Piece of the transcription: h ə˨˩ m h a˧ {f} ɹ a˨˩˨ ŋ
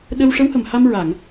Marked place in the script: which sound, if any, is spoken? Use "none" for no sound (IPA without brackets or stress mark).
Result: m